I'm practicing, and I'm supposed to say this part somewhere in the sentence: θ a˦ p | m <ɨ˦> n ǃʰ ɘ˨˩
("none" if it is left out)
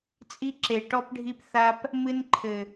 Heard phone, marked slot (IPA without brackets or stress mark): ɨ˦